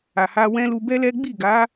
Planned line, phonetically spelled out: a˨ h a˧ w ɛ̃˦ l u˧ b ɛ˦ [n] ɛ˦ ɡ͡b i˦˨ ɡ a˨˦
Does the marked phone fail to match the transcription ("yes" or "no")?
yes